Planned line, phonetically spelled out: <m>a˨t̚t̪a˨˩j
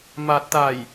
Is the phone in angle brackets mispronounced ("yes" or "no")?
no